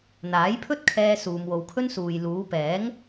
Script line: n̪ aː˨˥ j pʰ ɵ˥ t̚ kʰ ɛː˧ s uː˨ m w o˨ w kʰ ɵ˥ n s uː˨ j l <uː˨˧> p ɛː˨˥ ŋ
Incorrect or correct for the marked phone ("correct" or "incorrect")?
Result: correct